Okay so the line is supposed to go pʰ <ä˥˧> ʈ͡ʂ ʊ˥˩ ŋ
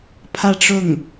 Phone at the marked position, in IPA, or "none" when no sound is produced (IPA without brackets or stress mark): ä˥˧